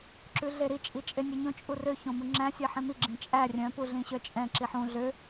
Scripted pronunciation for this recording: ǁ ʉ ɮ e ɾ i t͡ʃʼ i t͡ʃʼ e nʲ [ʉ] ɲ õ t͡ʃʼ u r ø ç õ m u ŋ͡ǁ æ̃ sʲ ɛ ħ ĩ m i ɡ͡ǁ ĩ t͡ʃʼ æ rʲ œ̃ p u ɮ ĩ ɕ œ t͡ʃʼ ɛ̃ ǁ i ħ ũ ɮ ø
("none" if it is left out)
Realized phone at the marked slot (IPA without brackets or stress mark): ø